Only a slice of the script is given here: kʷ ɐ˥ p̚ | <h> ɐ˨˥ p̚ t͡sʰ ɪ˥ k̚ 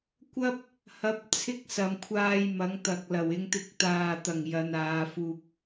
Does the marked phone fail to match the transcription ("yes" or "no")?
no